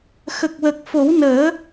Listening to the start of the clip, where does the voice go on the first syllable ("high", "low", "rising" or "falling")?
low